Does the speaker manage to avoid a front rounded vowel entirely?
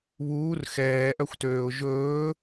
no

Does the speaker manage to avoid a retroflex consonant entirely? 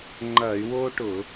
no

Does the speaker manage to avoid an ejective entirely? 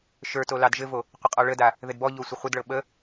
no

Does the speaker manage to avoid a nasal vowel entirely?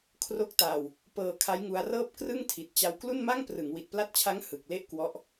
yes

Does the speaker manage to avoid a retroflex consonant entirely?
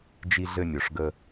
no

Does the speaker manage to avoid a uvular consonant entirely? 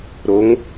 yes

